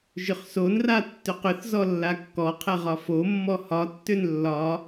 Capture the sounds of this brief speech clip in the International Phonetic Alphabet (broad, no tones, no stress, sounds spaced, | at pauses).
ʒ ʏ χ s o n r a tː ʏ q ʏ θ z ɔ lː a kː ɔ qʰ ɛ ʁ ɒ f o mː ɔ h ɒ tː ʏ n lː ɒ